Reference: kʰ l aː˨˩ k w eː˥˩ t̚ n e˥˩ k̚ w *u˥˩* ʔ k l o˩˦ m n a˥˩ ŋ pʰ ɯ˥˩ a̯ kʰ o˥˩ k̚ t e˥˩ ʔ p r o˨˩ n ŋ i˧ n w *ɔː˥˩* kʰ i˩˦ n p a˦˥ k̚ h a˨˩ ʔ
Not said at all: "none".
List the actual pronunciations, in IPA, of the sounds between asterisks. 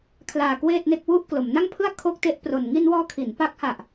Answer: u˥˩, ɔː˧

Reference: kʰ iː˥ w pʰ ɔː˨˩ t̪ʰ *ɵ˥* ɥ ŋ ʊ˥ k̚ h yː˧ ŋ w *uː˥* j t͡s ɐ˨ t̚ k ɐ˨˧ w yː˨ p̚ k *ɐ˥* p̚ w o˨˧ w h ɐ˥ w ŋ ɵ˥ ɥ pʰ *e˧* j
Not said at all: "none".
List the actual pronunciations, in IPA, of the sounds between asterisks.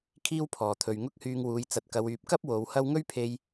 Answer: ɵ˨, uː˨˧, ɐ˥, e˧

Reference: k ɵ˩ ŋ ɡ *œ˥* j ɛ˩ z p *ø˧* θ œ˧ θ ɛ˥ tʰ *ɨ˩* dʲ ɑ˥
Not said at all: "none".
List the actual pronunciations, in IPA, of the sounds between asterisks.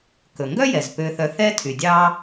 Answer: œ˥, ø˧, y˩

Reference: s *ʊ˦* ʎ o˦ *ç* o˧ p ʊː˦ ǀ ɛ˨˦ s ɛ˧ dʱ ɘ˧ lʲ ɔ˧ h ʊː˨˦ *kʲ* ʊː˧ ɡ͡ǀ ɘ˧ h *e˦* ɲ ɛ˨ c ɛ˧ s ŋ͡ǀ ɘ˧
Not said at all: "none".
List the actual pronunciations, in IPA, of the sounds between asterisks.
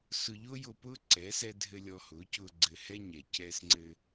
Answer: ʊ˧, j, c, ɛ˦

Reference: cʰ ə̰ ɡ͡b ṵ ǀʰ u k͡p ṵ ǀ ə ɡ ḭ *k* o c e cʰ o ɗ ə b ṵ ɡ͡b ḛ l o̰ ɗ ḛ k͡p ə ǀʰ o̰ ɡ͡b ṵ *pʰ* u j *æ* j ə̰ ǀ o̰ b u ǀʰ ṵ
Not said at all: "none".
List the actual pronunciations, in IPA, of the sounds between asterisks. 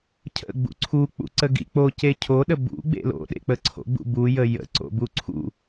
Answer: k͡p, b, ə

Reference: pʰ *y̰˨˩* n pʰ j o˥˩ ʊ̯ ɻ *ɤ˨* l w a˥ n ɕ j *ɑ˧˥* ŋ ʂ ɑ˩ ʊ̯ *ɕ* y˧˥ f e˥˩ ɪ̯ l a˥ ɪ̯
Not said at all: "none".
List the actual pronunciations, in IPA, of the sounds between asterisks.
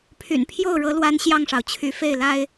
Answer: y̰˨˩, ɤ˧˥, ɑ˥˩, t͡ɕʰ

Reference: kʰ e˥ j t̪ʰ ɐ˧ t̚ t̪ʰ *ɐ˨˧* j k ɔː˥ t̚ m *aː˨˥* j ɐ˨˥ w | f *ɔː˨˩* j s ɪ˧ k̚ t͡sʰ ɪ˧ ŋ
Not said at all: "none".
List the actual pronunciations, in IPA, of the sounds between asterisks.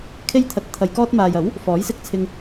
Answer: ɐ˧, aː˨, ɔː˨˥

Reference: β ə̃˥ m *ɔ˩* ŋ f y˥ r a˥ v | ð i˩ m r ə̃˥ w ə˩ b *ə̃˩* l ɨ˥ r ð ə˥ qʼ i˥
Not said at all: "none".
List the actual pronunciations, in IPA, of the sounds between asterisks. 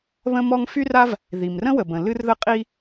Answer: ɔ˥, ə̃˩

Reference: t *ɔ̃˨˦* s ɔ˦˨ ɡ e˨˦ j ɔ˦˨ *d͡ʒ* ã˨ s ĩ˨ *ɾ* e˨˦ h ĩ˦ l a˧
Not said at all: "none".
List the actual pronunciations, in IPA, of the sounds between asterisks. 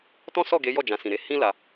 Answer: ɔ̃˦, d͡ʒ, ɾ

